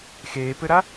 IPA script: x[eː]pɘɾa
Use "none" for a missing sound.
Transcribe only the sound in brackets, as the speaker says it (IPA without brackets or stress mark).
eː